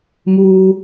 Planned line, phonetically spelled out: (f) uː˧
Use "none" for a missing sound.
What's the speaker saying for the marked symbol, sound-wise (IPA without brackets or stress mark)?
m